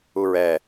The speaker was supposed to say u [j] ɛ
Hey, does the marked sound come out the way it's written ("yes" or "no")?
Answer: no